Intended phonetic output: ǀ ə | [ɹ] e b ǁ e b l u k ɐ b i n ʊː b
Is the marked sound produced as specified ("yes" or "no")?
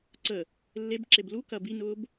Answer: no